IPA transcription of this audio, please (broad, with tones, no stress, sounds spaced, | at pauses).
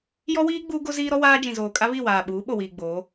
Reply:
j ɔ˦ w iː˦ ɡ͡b uː˦ ɡ o˦ z iː˦ ɾ ɔ˦ w aː˦ d͡ʒ ĩ˨ z oː˨ kʼ a˦ β i˦˨ w aː˨ ɓ uː˨˦ ɓ o˨ w iː˨ ɡ͡b oː˨˦